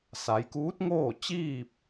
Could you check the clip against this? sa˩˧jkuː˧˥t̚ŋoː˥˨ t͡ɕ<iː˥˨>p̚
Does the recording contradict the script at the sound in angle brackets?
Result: no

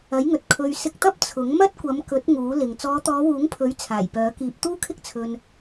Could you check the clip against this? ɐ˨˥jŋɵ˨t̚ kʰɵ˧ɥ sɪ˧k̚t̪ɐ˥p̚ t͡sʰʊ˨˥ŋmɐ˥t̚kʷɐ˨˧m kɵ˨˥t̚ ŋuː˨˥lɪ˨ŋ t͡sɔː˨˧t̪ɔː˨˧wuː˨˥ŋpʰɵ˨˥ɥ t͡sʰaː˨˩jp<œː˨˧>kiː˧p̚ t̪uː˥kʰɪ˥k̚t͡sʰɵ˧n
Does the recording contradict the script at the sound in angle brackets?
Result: yes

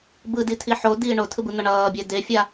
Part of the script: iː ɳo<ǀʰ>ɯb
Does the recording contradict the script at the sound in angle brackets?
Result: yes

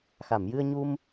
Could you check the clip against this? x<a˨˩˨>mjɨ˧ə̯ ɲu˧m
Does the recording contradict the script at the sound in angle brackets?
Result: no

